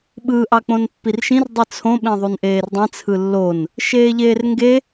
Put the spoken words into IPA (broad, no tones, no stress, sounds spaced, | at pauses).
ɓ ɯ ʔ ɑ k͡p õ n pː i r ʃ ĩ r dˤ i t͡sʰ õ ɓ ẽ ðˤ u n ʔ eː r dˤ ĩ t͡sʰ ɯ lː o n | ʃ eː ʎ eː r ŋ ɡ e